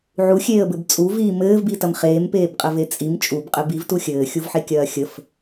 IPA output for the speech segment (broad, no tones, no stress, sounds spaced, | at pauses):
ʕ u xʲ eː ə̯ b ɘ b t͡sʼ u v iː m ɘː v b i t ɐ m χ eː m p eː b qʼ ə v e t͡sʼ i m t͡ʃʼ u b qʼ ɘ b i v t u xʲ ɘː xʲ u v ħ e kʲ ɐː xʲ ə f